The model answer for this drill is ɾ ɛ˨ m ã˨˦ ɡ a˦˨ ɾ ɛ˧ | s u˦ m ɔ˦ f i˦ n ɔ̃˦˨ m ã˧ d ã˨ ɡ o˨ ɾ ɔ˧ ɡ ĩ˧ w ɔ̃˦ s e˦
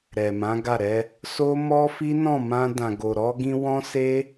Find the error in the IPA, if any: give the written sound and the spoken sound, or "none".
u˦ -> o˦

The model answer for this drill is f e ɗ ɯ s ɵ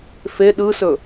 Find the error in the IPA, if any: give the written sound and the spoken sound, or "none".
none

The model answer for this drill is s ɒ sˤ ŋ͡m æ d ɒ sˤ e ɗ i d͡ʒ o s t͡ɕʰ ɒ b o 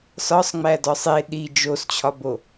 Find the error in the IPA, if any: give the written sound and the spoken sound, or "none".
none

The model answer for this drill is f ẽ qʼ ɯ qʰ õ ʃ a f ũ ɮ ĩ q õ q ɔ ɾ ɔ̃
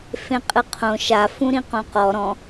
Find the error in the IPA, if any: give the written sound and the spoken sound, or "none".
ɮ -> ɾ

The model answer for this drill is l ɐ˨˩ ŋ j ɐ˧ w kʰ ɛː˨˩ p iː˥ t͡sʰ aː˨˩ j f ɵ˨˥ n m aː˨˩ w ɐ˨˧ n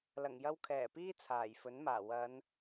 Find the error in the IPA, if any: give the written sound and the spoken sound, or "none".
none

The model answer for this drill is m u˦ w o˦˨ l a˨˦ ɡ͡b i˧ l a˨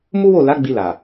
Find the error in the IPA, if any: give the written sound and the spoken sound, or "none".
none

